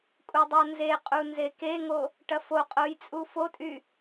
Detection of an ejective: present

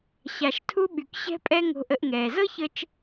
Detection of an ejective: present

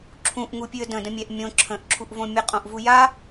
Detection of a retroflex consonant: absent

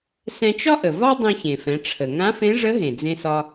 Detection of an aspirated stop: present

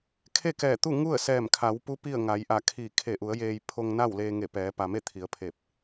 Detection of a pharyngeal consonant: absent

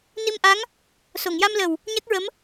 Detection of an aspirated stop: absent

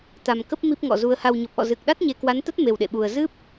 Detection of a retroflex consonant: absent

